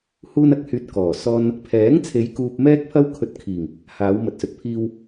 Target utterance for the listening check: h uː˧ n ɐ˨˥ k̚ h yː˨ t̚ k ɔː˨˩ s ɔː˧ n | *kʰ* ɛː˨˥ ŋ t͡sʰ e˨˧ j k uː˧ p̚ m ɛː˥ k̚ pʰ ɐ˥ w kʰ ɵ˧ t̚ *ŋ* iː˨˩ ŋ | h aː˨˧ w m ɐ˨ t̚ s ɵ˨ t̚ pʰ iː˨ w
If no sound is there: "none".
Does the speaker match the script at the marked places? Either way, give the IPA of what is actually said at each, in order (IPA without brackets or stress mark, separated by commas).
pʰ, kʰ